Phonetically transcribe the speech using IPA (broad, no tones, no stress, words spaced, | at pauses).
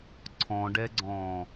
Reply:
ǀʰɔ̃ɖɛɡ͡ǀɔ̃